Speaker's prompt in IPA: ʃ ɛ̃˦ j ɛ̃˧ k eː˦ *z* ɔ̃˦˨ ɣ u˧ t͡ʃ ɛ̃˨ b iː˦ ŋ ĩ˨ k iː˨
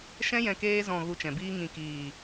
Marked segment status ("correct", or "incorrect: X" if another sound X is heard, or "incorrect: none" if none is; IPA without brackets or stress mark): correct